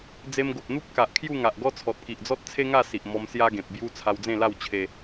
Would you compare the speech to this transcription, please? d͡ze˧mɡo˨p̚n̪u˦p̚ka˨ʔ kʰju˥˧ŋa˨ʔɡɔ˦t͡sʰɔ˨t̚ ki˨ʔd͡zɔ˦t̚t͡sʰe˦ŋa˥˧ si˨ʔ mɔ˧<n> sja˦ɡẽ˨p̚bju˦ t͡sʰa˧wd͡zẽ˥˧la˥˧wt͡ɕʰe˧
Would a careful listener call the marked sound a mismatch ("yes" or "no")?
yes